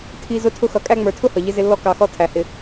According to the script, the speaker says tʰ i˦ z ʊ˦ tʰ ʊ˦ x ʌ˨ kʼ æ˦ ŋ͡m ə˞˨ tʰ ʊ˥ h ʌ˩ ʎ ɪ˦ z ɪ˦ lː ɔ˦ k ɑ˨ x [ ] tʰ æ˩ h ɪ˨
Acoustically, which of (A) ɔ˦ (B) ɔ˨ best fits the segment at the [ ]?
A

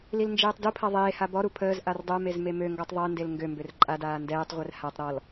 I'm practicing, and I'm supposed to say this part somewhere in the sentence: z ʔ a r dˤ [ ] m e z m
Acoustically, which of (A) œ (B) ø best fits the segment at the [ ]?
A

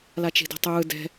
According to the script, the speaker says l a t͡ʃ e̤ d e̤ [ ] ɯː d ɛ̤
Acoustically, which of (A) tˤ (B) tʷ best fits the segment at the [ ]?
A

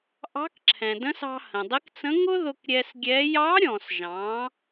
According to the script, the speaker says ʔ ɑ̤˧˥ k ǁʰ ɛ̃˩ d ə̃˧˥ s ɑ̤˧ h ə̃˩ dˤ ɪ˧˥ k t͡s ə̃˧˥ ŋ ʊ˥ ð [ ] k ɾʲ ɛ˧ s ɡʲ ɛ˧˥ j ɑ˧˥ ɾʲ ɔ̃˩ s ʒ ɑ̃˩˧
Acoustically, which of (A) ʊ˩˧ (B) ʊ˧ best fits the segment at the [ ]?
B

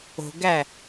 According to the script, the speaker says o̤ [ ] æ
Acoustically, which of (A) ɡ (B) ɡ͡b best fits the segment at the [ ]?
A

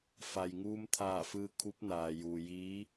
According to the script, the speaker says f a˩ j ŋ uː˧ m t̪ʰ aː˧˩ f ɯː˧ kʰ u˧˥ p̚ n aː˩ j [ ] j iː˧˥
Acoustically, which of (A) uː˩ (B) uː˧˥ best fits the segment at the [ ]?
A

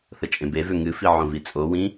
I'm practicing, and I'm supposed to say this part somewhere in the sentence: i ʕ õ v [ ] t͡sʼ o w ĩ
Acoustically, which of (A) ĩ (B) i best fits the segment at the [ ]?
B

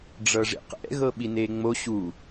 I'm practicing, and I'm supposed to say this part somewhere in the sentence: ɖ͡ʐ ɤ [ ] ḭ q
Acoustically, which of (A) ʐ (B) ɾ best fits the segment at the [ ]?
A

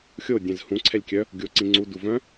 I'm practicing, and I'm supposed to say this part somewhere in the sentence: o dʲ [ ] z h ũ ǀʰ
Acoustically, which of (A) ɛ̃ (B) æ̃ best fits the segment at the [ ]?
A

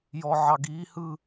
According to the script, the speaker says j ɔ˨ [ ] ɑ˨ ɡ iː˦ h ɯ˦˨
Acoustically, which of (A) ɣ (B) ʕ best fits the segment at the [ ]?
B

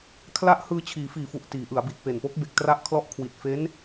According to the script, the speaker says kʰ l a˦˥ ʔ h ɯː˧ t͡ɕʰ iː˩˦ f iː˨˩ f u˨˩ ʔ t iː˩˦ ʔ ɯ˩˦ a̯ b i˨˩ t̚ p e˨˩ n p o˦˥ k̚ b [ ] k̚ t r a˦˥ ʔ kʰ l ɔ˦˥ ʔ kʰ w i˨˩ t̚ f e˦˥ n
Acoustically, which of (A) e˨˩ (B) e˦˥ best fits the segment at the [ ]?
A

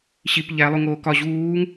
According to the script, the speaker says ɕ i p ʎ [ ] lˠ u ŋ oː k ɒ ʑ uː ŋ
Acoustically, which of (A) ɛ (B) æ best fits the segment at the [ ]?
B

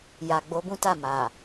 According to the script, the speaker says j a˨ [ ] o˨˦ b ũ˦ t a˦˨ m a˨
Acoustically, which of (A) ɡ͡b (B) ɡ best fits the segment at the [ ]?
A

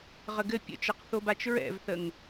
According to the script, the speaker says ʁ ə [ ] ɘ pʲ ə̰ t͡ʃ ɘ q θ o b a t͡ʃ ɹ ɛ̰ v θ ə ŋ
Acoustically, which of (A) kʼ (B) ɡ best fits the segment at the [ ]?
B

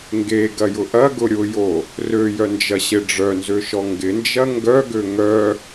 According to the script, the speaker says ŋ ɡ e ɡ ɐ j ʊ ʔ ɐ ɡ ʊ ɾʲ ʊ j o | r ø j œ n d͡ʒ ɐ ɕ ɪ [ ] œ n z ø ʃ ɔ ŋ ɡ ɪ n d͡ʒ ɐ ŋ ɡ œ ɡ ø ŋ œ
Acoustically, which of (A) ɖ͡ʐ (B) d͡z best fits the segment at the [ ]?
A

